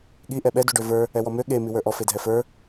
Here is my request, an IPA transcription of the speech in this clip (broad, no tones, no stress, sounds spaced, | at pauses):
ɠ i ʔ ɛ ɓ ɛ d u ɖ ø v ə˞ | ɛ w ɔ m ø ɠ e m i w ə˞ ʔ ɔ f e dʱ ɛ f ə˞